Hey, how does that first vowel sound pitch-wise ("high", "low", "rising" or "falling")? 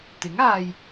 rising